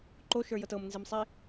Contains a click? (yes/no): yes